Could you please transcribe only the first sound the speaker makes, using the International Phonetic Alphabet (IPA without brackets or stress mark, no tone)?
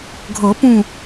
ɡʱ